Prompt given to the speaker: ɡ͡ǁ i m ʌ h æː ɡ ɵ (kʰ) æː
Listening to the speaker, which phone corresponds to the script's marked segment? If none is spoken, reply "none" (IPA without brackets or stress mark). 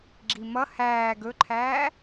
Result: ǃʰ